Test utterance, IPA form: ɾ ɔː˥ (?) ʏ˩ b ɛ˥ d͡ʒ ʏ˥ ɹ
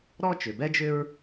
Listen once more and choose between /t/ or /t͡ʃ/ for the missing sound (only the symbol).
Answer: t͡ʃ